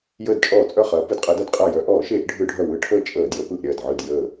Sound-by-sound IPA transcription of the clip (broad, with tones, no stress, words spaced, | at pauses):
jəː˧˩dt͡ʃʼɔː˧˩˧t͡sʼœ˧˩χɐː˩˧ pɯ˩˧dqʼəː˩˧dɐ˧˩dqʼɐː˧˩ jœ˧˩˧ʔɔː˧˩˧ʃeː˧˩˧ʔ ɖʱɯ˧˩˧ɖʱœ˧˩ wɯ˧˩˧ʈʰəː˧˩ t͡ʃʼəː˧˩˧djə˩˧ pɯ˧˩ʔɾʲɐː˧˩dʕɯ˧˩d jəː˧˩